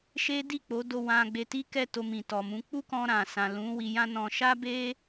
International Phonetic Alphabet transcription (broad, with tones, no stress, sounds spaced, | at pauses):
ʃ e˦ d i˦˨ k͡p o˨˦ d o˧ w ã˧ ɡ͡b e˧ t i˦ k ɛ˦˨ t o˧ m ĩ˨ t ɔ˨ m ũ˨˦ k͡p u˦ k ɔ̃˧ ɾ ã˨ s ã˨ l ũ˨˦ w i˧ j ã˦ n ɔ̃˧ ʃ a˦ b e˦